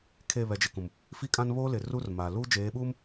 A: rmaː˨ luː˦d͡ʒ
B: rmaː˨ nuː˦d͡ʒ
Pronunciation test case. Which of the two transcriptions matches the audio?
A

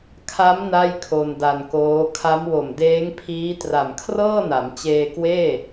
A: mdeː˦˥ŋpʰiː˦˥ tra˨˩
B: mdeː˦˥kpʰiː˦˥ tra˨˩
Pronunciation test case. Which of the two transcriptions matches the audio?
A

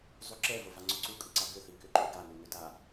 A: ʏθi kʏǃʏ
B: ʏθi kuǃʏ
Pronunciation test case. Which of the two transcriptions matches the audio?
A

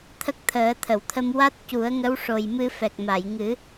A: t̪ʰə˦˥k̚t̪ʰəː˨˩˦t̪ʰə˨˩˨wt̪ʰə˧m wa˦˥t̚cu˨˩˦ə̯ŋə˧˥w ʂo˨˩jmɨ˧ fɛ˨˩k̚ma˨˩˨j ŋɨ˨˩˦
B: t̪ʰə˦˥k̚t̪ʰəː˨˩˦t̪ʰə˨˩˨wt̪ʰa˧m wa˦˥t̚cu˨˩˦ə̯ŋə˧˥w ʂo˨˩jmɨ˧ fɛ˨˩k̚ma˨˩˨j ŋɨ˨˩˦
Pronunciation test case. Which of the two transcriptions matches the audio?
A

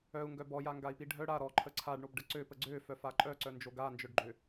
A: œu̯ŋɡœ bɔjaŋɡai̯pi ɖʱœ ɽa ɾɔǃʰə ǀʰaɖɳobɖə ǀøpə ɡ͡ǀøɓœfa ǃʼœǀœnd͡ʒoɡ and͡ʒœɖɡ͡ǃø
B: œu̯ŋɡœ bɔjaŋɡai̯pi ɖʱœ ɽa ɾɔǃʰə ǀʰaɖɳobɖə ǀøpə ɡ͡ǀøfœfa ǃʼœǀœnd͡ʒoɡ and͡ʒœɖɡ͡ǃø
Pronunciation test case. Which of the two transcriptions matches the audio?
B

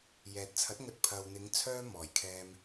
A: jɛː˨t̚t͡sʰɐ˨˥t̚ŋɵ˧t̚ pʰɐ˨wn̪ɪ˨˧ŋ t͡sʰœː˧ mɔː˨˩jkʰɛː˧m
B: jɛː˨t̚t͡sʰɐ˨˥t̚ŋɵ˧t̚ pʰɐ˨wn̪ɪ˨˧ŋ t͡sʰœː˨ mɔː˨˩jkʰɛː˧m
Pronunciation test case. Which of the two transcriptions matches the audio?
A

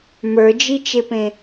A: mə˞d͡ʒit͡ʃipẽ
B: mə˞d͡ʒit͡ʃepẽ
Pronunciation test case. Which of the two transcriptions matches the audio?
B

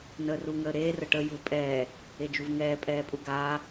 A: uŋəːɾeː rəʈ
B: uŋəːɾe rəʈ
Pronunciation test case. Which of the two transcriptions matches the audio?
A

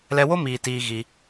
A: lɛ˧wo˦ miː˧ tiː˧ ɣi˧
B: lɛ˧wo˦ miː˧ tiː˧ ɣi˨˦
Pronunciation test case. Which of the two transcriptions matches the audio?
A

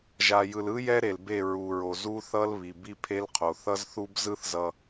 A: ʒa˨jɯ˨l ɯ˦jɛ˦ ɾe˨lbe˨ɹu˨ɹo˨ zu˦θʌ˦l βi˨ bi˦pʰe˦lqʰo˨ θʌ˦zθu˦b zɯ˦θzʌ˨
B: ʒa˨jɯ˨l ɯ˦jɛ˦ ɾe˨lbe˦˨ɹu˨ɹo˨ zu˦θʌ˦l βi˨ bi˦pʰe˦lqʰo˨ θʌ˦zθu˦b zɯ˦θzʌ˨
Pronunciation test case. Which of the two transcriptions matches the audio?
B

